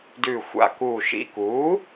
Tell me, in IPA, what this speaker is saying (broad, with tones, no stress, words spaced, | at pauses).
dʉː˧˩xʷa̰˧˩kuː˧˩ʃḭ˧˥˧ kuː˩˥